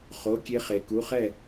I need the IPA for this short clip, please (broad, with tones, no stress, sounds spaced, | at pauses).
χ o˩˧˩ kʲ e˧ χ e˩ k u˩˧˩ χ ɛ˥˩